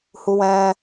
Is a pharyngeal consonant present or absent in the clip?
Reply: absent